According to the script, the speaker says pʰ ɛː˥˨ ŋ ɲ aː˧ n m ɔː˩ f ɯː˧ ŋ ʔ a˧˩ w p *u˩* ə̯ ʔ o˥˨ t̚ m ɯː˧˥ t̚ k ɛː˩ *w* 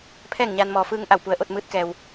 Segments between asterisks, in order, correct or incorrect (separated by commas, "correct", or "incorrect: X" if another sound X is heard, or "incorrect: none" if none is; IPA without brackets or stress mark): correct, correct